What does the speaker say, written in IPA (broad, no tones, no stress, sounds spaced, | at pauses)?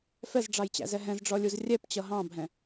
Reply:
f ɛ z ɖ͡ʐ ɑ j t͡ɕ æ̰ z ɛ ɦ ɛ̃ z ɖ͡ʐ ɔ lʲ u z rʲ ɛ p t͡ɕ ʌ ɦ ɑ̃ bʱ ɛ̃